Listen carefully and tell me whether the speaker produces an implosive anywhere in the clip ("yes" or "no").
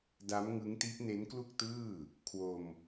no